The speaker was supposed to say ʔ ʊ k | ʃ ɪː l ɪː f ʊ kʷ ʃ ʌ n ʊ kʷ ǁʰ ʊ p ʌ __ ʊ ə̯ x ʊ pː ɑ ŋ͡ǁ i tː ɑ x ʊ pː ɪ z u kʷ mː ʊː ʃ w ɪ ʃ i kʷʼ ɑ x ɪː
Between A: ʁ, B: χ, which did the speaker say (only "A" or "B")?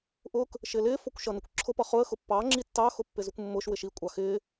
B